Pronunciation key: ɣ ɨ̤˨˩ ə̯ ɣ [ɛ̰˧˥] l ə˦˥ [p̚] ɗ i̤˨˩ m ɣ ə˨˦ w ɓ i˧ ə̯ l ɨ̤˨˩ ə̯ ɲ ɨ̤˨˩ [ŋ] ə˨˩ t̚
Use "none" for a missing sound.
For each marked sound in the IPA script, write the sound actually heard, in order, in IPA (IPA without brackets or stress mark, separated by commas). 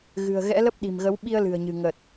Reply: ɛ̰˧˥, p̚, ŋ